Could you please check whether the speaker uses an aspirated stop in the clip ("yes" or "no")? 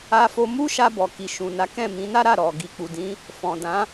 no